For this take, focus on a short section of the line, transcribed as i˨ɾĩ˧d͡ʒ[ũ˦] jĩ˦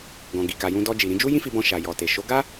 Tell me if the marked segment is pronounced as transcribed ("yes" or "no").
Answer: no